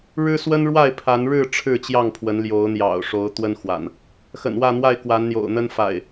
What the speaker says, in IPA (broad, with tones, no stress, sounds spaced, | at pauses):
ɻ ɻ̩˦ s w ə˦ n ɻ w a˥˨ ɪ̯ pʰ a˨˦ n ɻ ɻ̩˥˨ ʈ͡ʂʰ ɻ̩˥˨ t͡ɕ j ɑ˥˨ ŋ pʰ w ə˨˦ n l j o˨˦ ʊ̯ n̪ j ɑ̰˨˩ ʊ̯ ʂ o˨˦ ʊ̯ t̪ w ə˦ n x w a̰˨˩ n | x ə̰˨˩ n w ä˥˨ n̪ w a˥˨ ɪ̯ k w a˨˦ n n̪ j o̰˨˩ ʊ̯ n̪ ə˦ n f a̰˨˩ ɪ̯